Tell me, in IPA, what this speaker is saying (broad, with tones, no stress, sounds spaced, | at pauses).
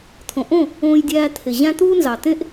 t̪ʰ õ˨ ʔ õ˦˨ | õː˧ j dʲ æː˧ t̪ʰ e˨ ʑ æ̃˦ t̪ uː˦ n z ɑ˨ t̪ ẽ˦ ʔ